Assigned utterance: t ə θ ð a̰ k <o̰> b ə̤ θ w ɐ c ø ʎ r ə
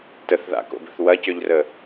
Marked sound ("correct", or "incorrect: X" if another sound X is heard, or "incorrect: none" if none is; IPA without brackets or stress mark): correct